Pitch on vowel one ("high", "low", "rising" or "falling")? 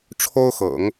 high